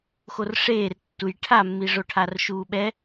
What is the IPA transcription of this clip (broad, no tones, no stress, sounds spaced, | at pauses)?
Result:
x o r ʂ eː r tː u j ʈʰ a mː i ʐ o ʈʰ a r ʃ uː ɓ ɛ